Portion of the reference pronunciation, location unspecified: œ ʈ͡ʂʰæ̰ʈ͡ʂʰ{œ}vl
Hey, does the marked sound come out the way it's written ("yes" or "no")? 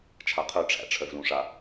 yes